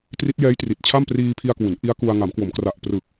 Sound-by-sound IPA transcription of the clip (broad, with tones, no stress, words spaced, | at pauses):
tri˦˥t̚jɛː˦˥jtri˨˩t̚t͡ɕʰa˥˩m priː˧pʰi˧a̯kwu˩˦n ʔi˦˥a̯ku˧a̯ ŋa˩˦mkwo˩˦mkra˨˩ʔ prɯ˨˩k̚